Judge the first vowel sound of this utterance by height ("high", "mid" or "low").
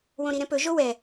mid